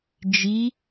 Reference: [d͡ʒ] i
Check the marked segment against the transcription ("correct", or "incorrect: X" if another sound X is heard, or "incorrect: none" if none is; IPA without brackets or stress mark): correct